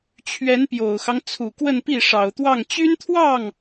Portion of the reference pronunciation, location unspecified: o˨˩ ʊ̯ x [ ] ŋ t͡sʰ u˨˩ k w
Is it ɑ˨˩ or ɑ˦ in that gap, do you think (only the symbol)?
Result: ɑ˦